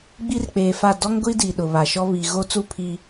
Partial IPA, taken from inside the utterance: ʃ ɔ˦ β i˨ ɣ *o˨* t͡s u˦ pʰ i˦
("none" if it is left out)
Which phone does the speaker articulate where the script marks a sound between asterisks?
o˦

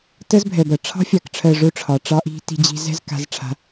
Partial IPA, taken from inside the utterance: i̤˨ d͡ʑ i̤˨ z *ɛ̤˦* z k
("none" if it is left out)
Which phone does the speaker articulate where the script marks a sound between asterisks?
ɛ̤˦˨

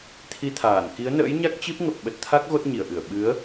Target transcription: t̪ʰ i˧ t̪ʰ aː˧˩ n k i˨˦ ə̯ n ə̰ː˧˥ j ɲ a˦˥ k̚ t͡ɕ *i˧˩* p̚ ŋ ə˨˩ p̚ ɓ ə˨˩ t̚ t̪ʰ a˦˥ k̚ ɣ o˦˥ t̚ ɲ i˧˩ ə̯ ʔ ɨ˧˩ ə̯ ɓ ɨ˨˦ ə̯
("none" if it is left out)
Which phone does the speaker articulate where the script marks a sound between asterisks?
i˦˥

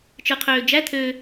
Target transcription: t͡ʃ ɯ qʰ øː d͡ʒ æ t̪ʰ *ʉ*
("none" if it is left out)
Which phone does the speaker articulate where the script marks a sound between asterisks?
ø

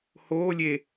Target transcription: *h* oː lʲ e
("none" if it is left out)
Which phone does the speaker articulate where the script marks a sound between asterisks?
h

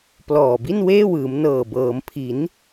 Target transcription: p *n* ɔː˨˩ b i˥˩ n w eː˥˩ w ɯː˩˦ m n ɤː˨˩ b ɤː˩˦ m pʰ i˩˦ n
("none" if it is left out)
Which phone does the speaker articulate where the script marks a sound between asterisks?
l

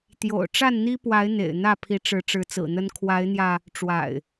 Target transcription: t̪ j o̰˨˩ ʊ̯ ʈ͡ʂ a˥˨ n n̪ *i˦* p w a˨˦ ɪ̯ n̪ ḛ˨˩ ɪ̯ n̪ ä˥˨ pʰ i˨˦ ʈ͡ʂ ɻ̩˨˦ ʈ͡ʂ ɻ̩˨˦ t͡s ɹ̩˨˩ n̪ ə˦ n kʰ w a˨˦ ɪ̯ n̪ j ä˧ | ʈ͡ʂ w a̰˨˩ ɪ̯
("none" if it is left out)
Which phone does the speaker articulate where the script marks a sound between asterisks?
i˦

